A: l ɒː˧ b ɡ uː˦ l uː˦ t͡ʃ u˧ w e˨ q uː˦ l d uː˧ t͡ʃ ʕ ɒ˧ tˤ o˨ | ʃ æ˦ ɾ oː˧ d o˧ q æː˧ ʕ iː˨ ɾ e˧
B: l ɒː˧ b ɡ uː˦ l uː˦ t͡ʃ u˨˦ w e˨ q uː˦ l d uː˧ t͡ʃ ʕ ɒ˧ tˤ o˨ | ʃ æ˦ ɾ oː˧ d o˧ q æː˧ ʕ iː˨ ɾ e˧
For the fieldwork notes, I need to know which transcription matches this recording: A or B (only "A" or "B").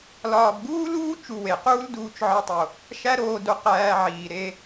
A